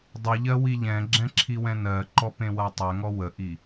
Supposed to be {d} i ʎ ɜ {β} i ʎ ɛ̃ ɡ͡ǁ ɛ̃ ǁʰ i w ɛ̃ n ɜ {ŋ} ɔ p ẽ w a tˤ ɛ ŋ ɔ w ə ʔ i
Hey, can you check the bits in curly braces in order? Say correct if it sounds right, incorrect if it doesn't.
incorrect, incorrect, incorrect

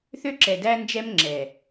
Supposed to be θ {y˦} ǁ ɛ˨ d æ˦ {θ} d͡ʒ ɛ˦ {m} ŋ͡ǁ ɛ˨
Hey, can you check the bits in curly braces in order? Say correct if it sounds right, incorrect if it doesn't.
incorrect, incorrect, correct

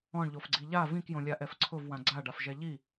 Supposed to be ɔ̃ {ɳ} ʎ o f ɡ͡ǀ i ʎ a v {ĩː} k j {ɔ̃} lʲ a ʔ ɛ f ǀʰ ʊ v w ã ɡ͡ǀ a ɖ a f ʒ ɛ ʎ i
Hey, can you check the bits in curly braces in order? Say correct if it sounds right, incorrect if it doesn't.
correct, incorrect, incorrect

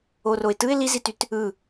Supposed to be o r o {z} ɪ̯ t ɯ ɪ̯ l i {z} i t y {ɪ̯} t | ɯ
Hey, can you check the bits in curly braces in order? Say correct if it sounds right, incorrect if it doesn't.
incorrect, correct, incorrect

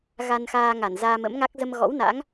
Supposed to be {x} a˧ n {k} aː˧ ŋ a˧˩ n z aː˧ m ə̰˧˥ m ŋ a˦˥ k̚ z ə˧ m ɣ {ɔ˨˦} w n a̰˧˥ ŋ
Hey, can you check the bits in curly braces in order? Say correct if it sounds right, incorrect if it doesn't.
incorrect, incorrect, incorrect

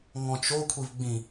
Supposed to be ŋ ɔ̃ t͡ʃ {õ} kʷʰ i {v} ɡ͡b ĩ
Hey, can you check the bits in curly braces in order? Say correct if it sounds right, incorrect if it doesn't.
incorrect, correct

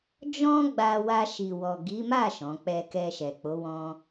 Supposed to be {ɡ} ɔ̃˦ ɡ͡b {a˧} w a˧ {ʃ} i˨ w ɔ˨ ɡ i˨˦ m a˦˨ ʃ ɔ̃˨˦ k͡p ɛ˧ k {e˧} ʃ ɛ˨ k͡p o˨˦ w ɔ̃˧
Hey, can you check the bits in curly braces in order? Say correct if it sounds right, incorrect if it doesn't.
incorrect, correct, correct, incorrect

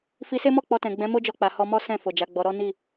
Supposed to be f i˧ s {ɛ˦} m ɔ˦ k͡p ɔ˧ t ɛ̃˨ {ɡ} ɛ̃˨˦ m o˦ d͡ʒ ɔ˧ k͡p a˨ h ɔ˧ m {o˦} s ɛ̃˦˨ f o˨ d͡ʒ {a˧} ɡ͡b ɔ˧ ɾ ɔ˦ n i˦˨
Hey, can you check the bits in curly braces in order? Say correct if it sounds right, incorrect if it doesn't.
incorrect, incorrect, incorrect, incorrect

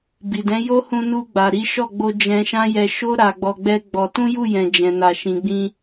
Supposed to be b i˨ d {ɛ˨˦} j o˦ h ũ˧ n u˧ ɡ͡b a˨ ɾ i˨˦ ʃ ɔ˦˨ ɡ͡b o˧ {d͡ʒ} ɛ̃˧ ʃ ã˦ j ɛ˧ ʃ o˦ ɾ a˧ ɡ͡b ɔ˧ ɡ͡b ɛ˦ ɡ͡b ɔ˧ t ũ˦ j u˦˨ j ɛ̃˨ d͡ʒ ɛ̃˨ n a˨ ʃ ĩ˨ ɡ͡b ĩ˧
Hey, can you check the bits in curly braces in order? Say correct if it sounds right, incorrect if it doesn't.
incorrect, correct

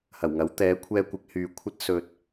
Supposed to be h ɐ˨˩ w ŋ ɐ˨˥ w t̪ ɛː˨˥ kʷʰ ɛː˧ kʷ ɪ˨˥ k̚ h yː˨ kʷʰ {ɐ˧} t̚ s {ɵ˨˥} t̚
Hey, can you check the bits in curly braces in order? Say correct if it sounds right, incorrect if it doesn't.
incorrect, incorrect

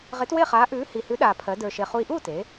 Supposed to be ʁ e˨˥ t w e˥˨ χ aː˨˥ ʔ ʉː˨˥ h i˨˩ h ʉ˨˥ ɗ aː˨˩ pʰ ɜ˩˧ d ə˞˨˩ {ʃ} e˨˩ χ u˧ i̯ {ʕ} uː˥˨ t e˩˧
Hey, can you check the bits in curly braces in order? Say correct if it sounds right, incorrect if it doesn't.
correct, incorrect

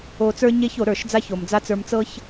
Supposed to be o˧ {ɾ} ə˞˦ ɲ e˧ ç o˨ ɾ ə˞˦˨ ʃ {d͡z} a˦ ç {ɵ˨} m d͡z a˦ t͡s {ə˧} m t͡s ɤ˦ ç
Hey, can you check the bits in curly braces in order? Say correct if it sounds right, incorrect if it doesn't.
incorrect, correct, incorrect, incorrect

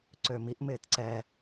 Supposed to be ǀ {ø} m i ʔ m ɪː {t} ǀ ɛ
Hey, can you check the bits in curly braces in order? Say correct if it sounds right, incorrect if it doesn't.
correct, correct

